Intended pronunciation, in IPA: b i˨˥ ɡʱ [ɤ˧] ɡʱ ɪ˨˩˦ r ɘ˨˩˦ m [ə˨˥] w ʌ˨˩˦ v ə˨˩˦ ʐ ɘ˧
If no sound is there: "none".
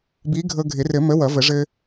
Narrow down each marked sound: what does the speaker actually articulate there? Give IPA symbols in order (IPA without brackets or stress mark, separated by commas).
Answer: ɤ˧, ə˨˥